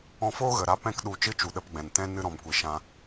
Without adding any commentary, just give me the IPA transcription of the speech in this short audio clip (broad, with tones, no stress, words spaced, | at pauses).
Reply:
ɔ̃˧foː˦ɣə˨ ɾa˧ pɛ̃˧kɗu˨ t͡ʃɨ˦t͡ʃu˨ɗə˧pɡ͡bɛ̃˨n tɛ̃˧ nɨ˧ɾɔ̃˨mkʷi˨ʃã˧